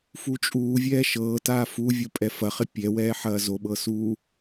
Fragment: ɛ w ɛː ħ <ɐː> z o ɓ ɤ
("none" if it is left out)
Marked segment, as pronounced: ɐː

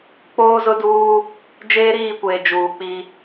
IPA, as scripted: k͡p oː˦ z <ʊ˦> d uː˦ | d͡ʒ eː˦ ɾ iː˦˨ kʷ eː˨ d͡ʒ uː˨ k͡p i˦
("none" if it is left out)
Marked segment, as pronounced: ʊ˦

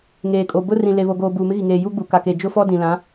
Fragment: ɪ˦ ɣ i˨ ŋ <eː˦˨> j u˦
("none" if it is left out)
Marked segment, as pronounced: eː˨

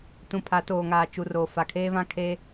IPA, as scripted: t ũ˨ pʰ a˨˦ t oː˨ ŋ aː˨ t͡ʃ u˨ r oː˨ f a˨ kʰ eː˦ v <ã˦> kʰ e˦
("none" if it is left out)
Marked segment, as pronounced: ã˦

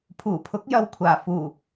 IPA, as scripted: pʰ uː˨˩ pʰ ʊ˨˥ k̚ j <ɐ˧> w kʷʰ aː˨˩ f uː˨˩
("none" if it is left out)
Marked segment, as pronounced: ɐ˧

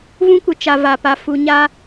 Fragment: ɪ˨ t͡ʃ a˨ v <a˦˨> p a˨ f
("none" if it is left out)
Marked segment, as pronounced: a˨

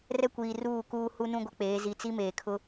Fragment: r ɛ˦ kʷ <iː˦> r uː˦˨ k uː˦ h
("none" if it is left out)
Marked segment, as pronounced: iː˨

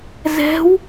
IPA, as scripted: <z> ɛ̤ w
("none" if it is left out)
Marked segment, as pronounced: z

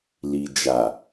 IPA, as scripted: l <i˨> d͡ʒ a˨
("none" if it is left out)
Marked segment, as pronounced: i˨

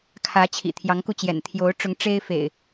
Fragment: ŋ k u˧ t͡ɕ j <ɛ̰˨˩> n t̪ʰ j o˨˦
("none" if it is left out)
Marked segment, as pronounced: ɛ̰˨˩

